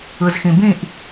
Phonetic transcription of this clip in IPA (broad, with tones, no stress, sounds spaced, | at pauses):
ɯ˨ z x ĩ˨ b ĩ˦˨ ʔ